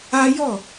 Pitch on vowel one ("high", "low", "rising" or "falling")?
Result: high